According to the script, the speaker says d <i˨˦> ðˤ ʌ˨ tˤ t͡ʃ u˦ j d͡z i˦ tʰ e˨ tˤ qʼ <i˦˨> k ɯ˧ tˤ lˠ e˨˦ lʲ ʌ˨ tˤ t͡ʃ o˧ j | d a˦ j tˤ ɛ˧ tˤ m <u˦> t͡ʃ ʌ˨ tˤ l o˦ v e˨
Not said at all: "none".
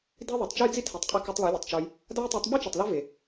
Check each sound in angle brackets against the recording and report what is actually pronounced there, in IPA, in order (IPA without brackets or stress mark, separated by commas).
i˦, i˧, ɯ˦